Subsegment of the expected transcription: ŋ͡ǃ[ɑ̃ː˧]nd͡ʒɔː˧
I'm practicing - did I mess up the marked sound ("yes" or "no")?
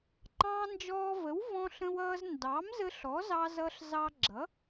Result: no